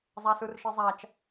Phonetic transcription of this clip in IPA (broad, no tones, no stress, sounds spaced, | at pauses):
zˤ a s ɯ r ʃ i zˤ a t͡ʃ